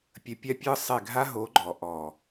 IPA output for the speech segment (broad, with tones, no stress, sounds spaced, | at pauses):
pʲ ə˧ pʲ a˦ pʲ ɯ˦ sˤ e˦˨ ɡʱ a˦ ɦ o˨˦ ɡ͡ǃ ɔ˨ ʔ ɔ˨